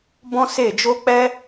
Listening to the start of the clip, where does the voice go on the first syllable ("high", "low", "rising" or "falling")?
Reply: high